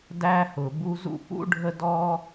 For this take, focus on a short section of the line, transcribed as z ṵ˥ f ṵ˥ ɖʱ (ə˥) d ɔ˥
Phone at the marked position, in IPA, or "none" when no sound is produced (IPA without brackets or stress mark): ə˥